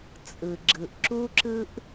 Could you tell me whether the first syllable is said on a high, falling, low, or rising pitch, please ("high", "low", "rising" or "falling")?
low